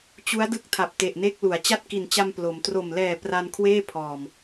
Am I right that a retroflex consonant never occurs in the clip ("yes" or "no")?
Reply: yes